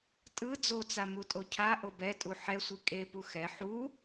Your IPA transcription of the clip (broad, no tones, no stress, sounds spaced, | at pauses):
tʼ ɯ d͡z o t͡s a m u tʼ o cʰ a ʔ o b ɛ tʼ u ħ ɛ sʷ i kʼ e p u x ɛ ħ u